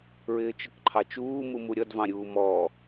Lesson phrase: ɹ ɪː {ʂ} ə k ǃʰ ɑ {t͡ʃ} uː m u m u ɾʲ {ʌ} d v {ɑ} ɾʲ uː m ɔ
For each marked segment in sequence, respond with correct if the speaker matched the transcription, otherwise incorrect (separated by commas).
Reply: incorrect, correct, correct, incorrect